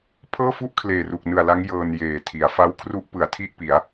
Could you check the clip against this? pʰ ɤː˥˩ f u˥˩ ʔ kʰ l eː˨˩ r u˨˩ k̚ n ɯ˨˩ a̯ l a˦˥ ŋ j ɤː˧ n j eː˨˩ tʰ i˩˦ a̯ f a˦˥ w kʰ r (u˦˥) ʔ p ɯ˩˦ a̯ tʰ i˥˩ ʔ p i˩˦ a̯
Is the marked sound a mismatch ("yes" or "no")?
no